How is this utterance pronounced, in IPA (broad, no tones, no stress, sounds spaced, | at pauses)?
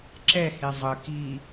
ǁ ɛ h e zˤ ɯ k i